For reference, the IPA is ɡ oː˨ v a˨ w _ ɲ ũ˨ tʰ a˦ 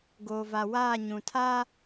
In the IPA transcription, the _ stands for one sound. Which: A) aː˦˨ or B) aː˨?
A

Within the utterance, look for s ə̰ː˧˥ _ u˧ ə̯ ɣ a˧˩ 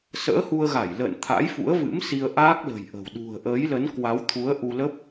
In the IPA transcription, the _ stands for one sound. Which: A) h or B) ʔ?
A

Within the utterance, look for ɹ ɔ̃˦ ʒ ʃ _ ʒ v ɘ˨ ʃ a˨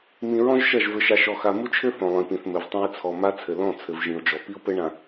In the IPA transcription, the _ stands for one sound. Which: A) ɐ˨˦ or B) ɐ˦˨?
B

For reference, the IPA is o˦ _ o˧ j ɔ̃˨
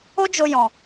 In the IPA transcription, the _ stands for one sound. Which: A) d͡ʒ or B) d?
A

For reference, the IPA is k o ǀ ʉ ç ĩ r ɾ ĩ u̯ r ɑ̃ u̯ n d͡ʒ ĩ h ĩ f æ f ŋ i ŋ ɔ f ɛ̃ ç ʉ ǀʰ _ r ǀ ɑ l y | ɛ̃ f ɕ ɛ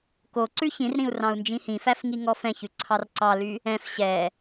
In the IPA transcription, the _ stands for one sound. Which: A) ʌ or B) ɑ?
B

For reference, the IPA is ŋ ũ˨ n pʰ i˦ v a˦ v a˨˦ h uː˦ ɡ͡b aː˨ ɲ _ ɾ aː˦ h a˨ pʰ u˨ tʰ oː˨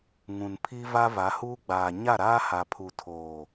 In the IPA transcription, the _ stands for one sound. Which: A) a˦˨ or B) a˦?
A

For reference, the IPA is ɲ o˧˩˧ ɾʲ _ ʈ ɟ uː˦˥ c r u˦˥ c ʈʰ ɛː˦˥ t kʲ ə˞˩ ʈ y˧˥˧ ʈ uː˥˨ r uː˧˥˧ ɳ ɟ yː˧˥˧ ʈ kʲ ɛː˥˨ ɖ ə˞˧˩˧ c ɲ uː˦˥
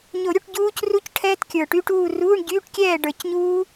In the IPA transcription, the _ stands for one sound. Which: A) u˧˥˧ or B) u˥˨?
A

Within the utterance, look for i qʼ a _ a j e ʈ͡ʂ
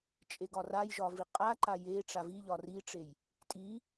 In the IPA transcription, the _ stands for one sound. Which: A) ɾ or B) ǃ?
B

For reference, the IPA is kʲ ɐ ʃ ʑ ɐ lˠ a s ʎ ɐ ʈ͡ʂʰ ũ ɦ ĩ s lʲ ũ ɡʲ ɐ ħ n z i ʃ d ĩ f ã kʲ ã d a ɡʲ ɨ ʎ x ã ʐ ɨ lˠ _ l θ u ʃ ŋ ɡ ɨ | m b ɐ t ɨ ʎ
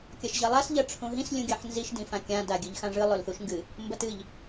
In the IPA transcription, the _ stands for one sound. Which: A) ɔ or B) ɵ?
B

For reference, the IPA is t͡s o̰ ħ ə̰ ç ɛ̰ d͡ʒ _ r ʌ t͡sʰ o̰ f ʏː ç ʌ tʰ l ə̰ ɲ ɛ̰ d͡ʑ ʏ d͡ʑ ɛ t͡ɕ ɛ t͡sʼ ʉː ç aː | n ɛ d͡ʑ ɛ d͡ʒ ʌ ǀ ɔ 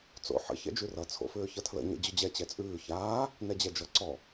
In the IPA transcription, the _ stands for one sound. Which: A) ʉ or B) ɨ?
A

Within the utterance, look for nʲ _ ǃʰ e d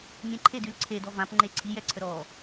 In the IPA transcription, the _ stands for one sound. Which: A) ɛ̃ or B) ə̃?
B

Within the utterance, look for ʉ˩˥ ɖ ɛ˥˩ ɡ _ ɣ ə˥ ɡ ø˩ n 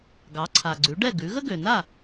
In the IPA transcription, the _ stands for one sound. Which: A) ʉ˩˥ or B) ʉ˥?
A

